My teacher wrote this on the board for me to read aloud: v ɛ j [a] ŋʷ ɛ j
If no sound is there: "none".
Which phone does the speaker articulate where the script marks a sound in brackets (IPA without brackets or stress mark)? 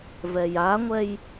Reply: a